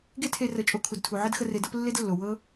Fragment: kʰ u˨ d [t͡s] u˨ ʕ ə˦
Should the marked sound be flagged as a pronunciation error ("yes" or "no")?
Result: yes